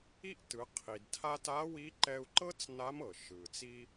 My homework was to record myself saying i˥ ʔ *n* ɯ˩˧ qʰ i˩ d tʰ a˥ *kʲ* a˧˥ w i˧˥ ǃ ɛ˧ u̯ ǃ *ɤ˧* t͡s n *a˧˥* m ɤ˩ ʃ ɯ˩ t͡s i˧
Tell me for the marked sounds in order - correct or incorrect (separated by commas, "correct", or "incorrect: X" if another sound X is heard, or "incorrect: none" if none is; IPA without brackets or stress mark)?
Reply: incorrect: t, incorrect: t, incorrect: ɤ˥, correct